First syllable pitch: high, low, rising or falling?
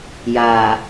low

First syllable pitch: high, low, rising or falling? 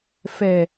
low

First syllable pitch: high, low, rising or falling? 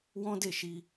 high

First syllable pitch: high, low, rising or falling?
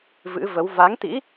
rising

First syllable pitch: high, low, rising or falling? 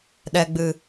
low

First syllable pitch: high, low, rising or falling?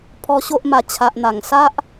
high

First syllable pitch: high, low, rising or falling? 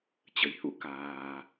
rising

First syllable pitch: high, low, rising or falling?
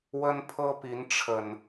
high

